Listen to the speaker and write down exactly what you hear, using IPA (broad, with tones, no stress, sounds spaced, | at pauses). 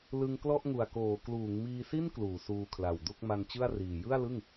l ɯ˧ ŋ k l ɔ˥˩ ʔ ŋ u˨˩ a̯ k oː˩˦ k l uː˩˦ ŋ m iː˧ s i˥˩ n k l uː˩˦ s uː˧ kʰ l a˨˩ w d u˥˩ k̚ m a˧ n t͡ɕ ɯ˥˩ a̯ r iː˨˩ j ɯ˥˩ a̯ l ɯ˥˩ ŋ